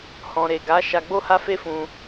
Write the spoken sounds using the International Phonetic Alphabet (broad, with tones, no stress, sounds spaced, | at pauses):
h ɔ̃˨ ɾ e˨ ɡ a˨˦ ʃ a˧ ɡ͡b o˦ h a˦ f e˦ f ũ˧